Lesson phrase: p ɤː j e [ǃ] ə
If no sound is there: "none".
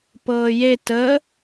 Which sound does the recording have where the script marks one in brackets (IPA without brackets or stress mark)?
t